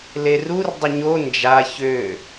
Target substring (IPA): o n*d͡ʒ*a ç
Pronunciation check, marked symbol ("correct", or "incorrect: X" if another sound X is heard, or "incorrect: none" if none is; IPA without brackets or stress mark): correct